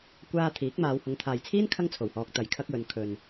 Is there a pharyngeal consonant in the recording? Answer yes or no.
no